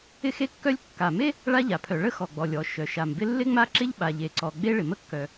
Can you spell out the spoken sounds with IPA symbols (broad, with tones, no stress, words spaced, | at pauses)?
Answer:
ɪ˥xe˥kːœ˥lʲ kːa˩me˥ | ɭa˥ʎa˩pʰœ˩ ɭə˥xɔ˩ ɡ͡bɔ˩lʲɔ˩ ʃœ˩ʃa˩mbɪ˥ lːɪ˥ŋ͡ma˥ ǁɪ˥ʎ ɓa˩ʎe˩ǀɔ˩ ɡ͡be˥ ɭɪ˩mə˥kːœ˩